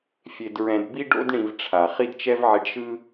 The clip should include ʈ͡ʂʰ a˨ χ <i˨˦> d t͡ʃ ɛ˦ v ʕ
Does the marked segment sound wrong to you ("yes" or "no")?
yes